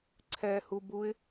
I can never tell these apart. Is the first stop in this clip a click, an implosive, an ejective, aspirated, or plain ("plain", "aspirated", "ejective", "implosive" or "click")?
click